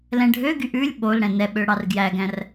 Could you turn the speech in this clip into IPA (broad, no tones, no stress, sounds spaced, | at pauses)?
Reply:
l ɛ̃ ɖʱ ø ɡ y ʔ ʉ lʲ ɓ o l ɽ ɛ̃ n ɛ ɓ ø ɽ ɑ r ɡ j æ ɡ æ̃ r